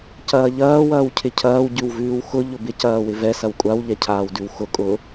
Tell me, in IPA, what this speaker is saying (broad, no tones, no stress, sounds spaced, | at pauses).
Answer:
c ɐː ʎ ɐː w ɐː w cʰ ɪ cʰ ɐː w ɟ ʉ w v ʉː w x ʊ ʎ ʊ b ɪ c ɐː w ɪ v ɛ s ɐ w kʷʼ a w ʎ ɛ cʰ aː w d ʉ w x ʊ kʼ ʊ